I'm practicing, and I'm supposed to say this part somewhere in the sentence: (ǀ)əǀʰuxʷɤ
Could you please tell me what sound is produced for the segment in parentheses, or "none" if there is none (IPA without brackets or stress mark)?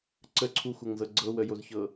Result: ǀ